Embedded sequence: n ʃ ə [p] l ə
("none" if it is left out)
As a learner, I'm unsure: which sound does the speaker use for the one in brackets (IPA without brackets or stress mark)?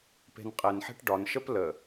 p